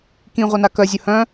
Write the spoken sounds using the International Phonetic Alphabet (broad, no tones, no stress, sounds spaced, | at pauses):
k ĩ ʁʷ œ n a k œ zʲ ɵ h œ̃